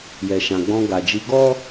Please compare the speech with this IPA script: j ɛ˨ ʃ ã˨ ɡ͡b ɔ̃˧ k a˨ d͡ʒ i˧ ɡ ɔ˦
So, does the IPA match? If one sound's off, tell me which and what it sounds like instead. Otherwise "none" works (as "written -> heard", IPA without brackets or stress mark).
k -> ɡ